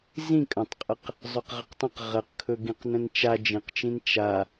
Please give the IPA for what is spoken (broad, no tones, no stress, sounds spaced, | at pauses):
z ĩ kʼ ə̃ tˤ qʼ ə q | zˤ ɵ q ʁ ə q tˤ ə̃ q ʁ ə q kʰ ɵ ɡ ĩ q n ə̃ n t͡ʃ a d͡ʒ ĩ q t͡ʃ ĩ n t͡ʃ a